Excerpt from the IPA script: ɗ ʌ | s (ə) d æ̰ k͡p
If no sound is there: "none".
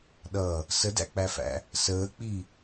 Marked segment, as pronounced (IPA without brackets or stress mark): ə